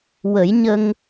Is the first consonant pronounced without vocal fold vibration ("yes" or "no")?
no